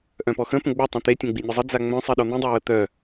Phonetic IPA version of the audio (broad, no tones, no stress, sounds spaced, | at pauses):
ʔ œ̃ p ɔ x ə̃ p ə̃ ɡ͡b œ tˤ ẽ t̪ e tʲ ẽ ɡ͡b i nʲ e zˤ ə d͡z a ŋ͡m œ̃ sˤ i ɗ ɔ n̪ ĩ dˤ œ w ə t̪ œ